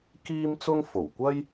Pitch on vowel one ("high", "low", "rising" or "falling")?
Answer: high